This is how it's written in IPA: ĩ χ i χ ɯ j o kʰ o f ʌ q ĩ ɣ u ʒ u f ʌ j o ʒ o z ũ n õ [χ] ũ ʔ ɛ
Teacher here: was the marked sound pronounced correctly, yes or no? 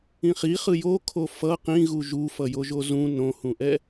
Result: no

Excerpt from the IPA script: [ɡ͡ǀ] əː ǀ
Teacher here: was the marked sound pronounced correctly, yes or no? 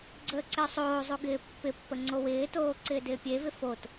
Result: yes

